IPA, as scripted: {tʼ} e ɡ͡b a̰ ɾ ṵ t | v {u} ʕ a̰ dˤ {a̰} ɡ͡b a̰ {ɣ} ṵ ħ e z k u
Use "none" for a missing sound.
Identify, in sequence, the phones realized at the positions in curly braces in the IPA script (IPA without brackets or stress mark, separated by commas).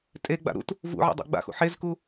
tʼ, ṵ, a̰, x